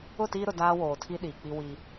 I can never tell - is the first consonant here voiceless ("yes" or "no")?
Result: yes